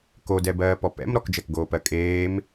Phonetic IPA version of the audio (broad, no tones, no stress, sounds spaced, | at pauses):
k o d ɛ b ɜː p ɔ p ɛ̰ m ɾ ɔ k d͡ʒ ɜ k ɡ oː p ɜ kʼ eː m